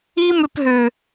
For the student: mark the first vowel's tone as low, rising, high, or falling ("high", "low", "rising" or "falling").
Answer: high